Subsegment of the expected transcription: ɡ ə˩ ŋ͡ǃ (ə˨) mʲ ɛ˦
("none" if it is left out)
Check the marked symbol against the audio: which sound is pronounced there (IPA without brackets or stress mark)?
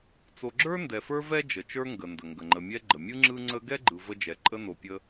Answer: ə˨